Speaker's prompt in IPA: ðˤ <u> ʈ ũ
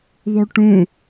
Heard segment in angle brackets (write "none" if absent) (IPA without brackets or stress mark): u